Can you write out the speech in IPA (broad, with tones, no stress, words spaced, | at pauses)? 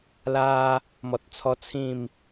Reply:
la˧ | mɔ˨t̚t͡sʰɔ˧ t͡sʰĩ˥˧m